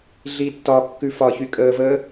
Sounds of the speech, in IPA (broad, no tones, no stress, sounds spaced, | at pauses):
ɮ i tː ɒ kː ʉ f ɒ ç y kʼ əː v əː